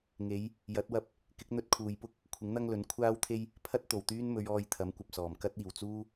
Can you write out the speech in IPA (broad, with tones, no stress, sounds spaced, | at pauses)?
ŋ e˨˧ j | j ɐ˨˥ t̚ w ɐ˧ p̚ | k ɪ˨˥ k̚ n̪ ɵ˧ t̚ kʰ uː˨ j p ʊ˥ k̚ | kʷʰ ɪ˨˥ ŋ n̪ ɐ˥ ŋ l ɵ˨˥ n kʷʰ aː˥ w t̪ʰ e˥ j | pʰ ɐ˥ t̚ t̪ o˨˩ w t̪ yː˥ n m ɵ˨˧ ɥ ɔː˧ j t̪ʰ ɐ˨˥ m kʷ ɐ˨ p̚ s ɔː˨˩ m k ɐ˥ t̚ iː˨˩ w t͡s uː˥